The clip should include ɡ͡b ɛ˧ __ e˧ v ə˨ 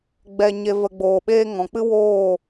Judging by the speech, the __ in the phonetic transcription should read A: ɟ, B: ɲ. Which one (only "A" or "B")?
B